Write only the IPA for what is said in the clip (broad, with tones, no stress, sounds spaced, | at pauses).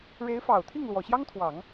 ɻ e˧˥ ɪ̯ f ɑ˨˩ ʊ̯ t̪ʰ i˥˩ ŋ l w ɔ˨˩ ɕ j ɑ˥ ŋ t̪ʰ w ɑ˨˩˦ ŋ